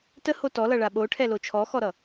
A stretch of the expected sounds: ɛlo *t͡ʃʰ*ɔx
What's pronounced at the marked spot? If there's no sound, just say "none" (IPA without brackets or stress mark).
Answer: t͡ʃʰ